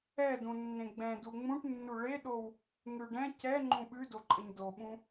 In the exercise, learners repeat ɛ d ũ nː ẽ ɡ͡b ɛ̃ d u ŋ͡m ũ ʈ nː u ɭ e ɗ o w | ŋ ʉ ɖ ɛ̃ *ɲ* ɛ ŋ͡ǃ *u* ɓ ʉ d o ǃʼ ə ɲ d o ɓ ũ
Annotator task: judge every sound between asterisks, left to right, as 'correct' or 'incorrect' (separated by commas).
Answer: incorrect, incorrect